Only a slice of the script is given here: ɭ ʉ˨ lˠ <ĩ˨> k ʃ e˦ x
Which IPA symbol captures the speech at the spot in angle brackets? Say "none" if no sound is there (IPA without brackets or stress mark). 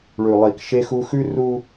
i˨